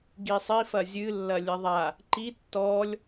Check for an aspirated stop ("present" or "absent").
absent